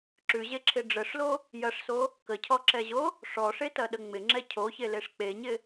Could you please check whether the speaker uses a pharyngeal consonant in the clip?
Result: no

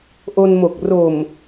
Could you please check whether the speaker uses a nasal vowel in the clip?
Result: no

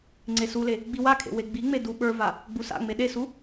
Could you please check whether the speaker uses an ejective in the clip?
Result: no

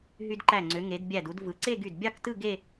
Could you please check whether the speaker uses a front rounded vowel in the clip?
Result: yes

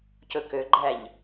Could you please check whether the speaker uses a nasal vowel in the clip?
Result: no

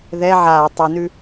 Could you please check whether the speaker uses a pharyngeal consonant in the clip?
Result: yes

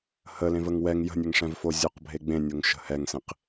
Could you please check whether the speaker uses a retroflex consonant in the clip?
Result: yes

